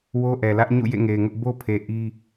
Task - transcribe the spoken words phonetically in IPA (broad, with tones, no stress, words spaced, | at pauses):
wo˦ʔɛ˨lä˦ʔ ɲṵ˦˨jḛ˦˨ŋe˨ɪ̯ŋʊ˦ʔ bo˦pʰe˨ ʔi˦